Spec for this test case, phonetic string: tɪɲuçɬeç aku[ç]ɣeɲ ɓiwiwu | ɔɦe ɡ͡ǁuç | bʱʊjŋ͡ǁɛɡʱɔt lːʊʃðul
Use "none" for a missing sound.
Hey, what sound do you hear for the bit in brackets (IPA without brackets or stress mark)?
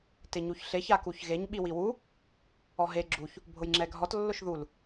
ç